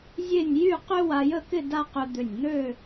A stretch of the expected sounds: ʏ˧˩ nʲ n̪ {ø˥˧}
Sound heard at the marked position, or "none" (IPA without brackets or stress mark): ø˥˧